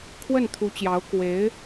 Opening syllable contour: falling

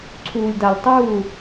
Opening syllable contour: low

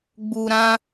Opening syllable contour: low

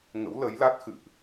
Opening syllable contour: rising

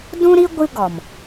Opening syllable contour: high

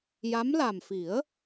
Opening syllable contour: rising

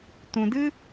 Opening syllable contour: low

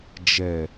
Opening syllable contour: low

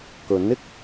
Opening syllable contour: rising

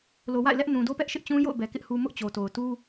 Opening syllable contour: low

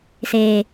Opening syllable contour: low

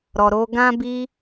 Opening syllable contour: low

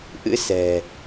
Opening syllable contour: rising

